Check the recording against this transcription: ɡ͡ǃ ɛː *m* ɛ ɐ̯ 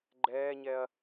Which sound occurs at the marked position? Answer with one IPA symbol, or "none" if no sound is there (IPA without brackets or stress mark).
ɲ